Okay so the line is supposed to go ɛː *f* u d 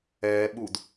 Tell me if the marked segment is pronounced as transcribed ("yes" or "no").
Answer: no